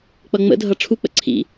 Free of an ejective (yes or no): yes